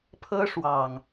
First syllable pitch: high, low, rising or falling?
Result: high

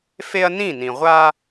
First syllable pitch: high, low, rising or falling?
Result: high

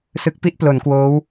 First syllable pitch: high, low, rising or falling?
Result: low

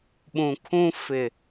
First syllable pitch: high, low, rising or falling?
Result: low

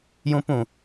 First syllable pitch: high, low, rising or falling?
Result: high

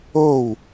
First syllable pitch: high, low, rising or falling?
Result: falling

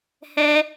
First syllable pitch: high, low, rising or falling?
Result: high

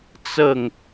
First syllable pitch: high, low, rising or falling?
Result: falling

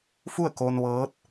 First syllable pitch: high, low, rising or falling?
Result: falling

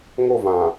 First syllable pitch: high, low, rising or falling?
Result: falling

